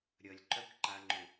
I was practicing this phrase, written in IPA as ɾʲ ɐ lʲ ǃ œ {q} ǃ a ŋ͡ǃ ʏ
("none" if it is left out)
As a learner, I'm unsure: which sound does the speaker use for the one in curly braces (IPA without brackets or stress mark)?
k